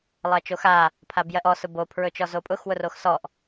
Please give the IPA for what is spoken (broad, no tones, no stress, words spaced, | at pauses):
lˠɜt͡ʃoxa | pʰabjɜʔɔ sʊbo pʰɹɵt͡ʃɔzopʼʊx wʊroxsɔʔ